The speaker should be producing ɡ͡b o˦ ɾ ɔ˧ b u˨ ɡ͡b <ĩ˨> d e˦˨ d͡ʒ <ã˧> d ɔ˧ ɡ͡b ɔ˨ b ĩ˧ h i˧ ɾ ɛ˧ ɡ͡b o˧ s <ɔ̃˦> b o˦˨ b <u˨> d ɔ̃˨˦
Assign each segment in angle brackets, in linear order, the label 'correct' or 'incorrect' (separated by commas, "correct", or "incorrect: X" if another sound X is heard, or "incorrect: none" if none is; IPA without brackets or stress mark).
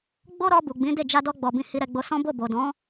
incorrect: ĩ˨˦, incorrect: a˧, correct, incorrect: o˨